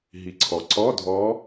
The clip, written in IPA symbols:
ɦ i˩ ǀʰ ɔ˩ ǀ ɔ˧˥˧ dʱ ɔ˧˥

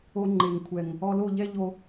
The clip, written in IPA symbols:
o˧ ŋ͡ǃ e˨ ŋ kʷʰ ɛ˨ ŋ | ɔ˧ l o˦˨ ʎ ɛ˦ ʎ o˦

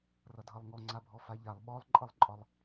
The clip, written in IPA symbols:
r ʌ dʱ ʌ lˠ ŋ ɔ ŋ͡ǀ a bʱ ɔ f a ʎ a lˠ ɓ ɔ lˠ ǃʼ ʌ lˠ ǃʼ ɒ lˠ

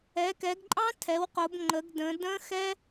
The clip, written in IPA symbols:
ɛ˩˧ k ɛ˩˧ ɡ ǃʼ ɑ̃˦˥ tʰ ɛ˩˧ w q o˩˧ b ŋ͡ǃ ə˩˧ ɡ d ə̃˩˧ d ə̃˦˥ x ɛ˦˥

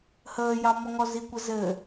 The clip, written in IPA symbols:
h əː j ɑ m ɔ ŋ ɔ z i kʷ ɘ z ɘ

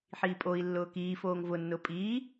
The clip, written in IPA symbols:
ħ iː pʼ o i̯ lː ʊː k iː f oː ŋ v ʊ nː ʊ pʼ iː

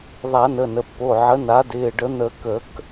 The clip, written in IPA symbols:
ðˤ a˨˩˦ n ə˩˧˩ n ə˩˧˩ pː o˩˧˩ ʕ ə˩˥ n a˩˥ d ɪː˩˧˩ ɖ ə˨˩˦ n̪ ə˨˩˦ k ə˨˩˦ k

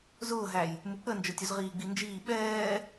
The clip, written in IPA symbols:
z ʊː ɦ æ j | m u k͡p ə n d͡ʒ ə˞ tʲ u z ʁ iː ɡ͡b i n d͡ʒ iː ɓ ɛː

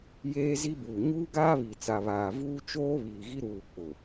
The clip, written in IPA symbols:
j eː˦ z i˦ b uː˨ ɲ uː˦ ɡ aː˦ β i˨ t͡s a˨ β aː˨ v uː˦ t͡ʃ oː˦ β iː˨ ɣ i˦ ɾ uː˨ k͡p ʊ˨

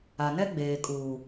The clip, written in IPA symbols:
a˨ n ɛ˦ ɡ͡b eː˨ kʼ uː˨

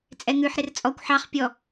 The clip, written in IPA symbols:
t͡sʼ ɛ ŋ ʉ ħ ɾ ɪ r t͡sʼ ɔ kʷ ħ ɑ χ pʲ ɔ

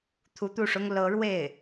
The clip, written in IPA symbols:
t̪ʰ u˧˥ t̪ u˥˩ ʂ ʊ˥ ŋ l ɤ˧˥ ɻ w e˥˩ ɪ̯

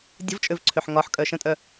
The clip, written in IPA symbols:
dʲ ə̤ v t͡ʃʼ ø v ǀʰ ø ħ ŋ ɒ ħ kʼ œ ʃ ə̃ tʼ œ

